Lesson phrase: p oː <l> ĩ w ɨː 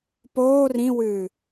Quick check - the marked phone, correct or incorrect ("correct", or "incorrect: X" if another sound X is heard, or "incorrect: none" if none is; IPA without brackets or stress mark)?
incorrect: r